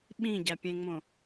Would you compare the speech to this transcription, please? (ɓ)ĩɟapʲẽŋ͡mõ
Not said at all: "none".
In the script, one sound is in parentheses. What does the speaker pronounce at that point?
ɓ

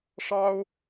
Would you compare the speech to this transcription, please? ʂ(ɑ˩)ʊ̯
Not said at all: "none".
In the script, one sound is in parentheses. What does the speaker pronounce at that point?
ɑ˥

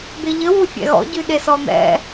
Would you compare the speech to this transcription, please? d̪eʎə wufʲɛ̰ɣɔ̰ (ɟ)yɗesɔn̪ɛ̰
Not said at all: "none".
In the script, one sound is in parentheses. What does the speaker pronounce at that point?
ɟ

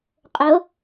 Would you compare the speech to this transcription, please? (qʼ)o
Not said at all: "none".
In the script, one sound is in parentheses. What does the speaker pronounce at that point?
qʼ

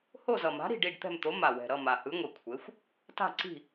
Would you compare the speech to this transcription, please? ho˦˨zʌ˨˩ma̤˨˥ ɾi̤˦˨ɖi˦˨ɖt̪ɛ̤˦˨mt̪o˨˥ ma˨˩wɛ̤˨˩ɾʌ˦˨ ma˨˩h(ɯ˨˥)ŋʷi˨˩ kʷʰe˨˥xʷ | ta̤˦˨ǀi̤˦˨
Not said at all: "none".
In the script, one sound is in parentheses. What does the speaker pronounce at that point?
ɯ˨˥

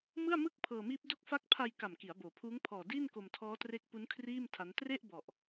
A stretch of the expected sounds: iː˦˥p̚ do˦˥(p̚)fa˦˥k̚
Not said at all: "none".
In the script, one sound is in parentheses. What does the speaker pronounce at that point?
k̚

